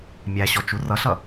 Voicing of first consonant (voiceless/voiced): voiced